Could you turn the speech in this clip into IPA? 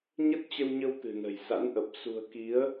ɲ ə˦˥ t̚ t͡ɕ ə˧ w ɲ ə˧ w t̪ ɨ̤˨˩ n ə̤˨˩ j s a̰˧˥ n ʔ ə˨˩ p̚ s ṳ˨˩ ə̯ k i˨˦ ə̯

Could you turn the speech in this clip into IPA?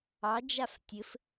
ɑ d͡ʒ a f tʲ ɘ f

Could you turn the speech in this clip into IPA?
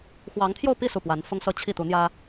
x w ɑ˧˥ ŋ t̪ʰ j o˥˧ ʊ̯ p i˥˧ s u˥˩ p w a˧˥ n f ʊ˥ ŋ s ɤ˥ t͡ɕʰ i˥˩ t̪ u˧˥ n̪ j ä˥

